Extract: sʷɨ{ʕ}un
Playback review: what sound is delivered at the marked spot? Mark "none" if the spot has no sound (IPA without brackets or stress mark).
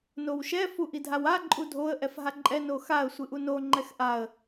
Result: ʔ